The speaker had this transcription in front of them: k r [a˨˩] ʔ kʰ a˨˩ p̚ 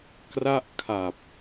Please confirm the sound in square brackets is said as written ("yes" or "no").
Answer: no